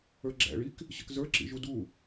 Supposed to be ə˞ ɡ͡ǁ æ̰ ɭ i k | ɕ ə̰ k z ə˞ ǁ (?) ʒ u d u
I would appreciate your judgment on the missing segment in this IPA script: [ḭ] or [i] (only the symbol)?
ḭ